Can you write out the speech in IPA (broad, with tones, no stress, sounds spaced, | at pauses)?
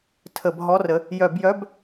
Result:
tʰ ə˧˩˧ b ɦ ɔ˧˥˧ r ə˨˦ | j œ˧˩˧ b j œ˧˥˧ b